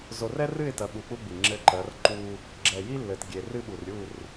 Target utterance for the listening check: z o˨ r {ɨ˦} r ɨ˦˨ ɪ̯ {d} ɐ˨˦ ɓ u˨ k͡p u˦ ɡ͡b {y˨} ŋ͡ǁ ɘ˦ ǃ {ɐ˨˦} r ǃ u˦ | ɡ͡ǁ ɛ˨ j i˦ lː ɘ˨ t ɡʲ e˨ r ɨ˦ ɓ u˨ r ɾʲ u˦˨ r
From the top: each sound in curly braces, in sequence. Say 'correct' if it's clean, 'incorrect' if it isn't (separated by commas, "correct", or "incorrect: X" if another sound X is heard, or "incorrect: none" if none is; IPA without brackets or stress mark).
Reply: incorrect: ɛ˦, incorrect: t, incorrect: i˨, correct